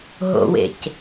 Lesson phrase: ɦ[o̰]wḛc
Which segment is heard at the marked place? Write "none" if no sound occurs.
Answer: o̰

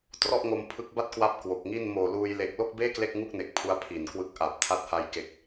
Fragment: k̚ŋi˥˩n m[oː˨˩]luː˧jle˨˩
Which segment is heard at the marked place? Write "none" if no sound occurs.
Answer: oː˨˩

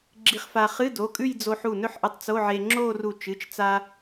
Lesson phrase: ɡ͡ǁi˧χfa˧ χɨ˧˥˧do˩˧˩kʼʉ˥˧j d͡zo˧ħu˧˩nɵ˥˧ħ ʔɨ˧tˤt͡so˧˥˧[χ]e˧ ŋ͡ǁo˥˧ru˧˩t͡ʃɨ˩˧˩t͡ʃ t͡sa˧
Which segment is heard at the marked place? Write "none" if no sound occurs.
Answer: ʕ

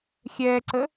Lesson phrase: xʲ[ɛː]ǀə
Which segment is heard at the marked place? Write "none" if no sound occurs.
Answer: ɛː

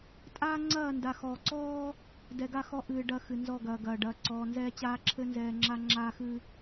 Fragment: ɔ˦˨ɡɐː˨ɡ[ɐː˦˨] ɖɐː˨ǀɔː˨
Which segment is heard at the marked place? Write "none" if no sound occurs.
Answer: ɐː˨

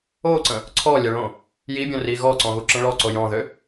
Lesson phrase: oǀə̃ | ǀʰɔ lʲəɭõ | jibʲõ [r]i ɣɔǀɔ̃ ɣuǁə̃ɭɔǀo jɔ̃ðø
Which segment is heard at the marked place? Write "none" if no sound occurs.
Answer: r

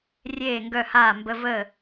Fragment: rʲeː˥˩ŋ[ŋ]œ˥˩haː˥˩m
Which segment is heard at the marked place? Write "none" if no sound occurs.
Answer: ɡ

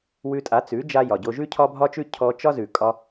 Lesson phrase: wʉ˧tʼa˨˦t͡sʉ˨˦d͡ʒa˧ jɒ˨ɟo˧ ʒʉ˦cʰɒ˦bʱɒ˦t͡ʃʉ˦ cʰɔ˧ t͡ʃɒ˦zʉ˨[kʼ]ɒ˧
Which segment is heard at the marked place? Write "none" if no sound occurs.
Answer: kʼ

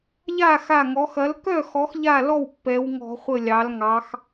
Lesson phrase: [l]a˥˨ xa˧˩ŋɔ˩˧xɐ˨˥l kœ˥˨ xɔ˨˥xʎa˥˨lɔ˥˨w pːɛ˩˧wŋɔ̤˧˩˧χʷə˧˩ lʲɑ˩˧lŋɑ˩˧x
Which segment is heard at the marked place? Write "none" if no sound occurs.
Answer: ʎ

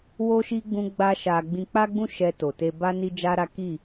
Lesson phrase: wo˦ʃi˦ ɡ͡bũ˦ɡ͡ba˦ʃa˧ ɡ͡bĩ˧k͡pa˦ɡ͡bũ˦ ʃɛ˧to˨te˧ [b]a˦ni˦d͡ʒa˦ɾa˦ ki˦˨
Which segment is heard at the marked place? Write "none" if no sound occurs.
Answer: b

